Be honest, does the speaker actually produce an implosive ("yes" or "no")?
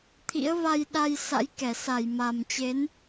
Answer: yes